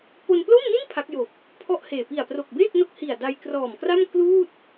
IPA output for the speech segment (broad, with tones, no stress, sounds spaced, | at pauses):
p o˧ n p l o˥˩ m n i˥˩ n pʰ a˦˥ k̚ j o˨˩ k̚ | pʰ ɔ˥˩ ʔ h eː˨˩ p i˨˩ a̯ p r o˨˩ k̚ b eː˥˩ k̚ n o˦˥ k̚ h i˨˩ a̯ d a˧ j k r ɔː˨˩ m k r a˥˩ m k l uː˥˩ t̚